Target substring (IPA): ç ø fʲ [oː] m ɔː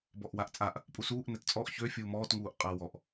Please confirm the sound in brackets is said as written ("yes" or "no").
no